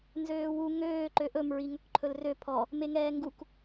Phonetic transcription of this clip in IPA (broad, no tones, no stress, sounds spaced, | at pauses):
n z øː w u ŋ øː ǃ ø ʔ ɵ m ɹ i ŋ ɵ k ǃʰ ɵ l r ø pʰ ɔ | m e ŋ ɛː ŋ ɡ u k